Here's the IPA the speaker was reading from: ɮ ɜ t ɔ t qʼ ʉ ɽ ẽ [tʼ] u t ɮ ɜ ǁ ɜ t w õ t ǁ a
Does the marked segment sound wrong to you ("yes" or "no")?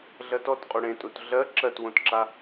no